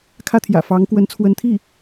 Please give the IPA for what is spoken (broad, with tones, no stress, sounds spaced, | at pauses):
kʰ ä˥˩ t̪ʰ j ä̰˨˩ f ɑ˧˥ ŋ k w ə˧˥ n t͡sʰ w ə˧˥ n t̪ʰ i˥˩